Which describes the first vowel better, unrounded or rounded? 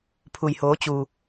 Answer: rounded